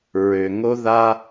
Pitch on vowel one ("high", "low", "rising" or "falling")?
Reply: low